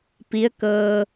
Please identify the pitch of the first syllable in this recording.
rising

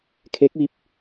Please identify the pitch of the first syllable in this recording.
rising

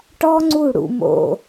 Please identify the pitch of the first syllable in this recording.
high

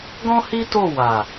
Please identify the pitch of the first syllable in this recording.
high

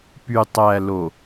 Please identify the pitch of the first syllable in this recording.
low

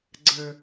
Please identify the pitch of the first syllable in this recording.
low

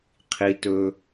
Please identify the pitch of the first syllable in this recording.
high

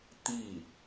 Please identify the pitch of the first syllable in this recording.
falling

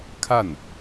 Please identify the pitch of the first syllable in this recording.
falling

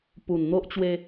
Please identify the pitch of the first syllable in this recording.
low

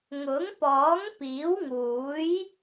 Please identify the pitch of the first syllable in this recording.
rising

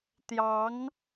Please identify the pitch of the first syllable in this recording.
rising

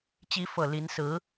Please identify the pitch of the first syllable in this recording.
rising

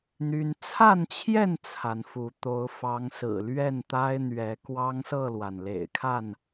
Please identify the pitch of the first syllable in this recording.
high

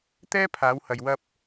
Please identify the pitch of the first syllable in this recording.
high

